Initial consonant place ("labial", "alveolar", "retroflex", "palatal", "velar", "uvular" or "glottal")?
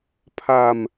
labial